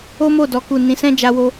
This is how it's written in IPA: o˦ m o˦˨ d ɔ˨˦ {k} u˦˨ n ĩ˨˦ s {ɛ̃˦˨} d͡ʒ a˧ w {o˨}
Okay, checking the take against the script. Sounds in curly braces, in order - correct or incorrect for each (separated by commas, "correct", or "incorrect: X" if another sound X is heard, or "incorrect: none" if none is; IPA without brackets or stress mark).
correct, incorrect: ɛ̃˦, incorrect: o˧